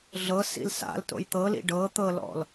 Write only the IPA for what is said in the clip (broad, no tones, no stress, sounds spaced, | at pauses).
ɮ ɤ s ḭ l s a̰ l t o̰ j t̪ ɤ l ḭ ɖ ɤ t̪ ɤ l ɔ̰ l